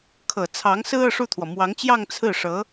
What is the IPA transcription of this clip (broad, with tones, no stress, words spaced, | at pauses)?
kʰɤ˨˩t͡sʰɑ˧˥ŋsɹ̩˥ ɤ˥˧ʂu˥˩t̪ʰwɔ˩ mwɑ˧˥ŋt͡ɕjɑ˥˧ŋ t͡sʰɹ̩˥˩ʂɤ˧˥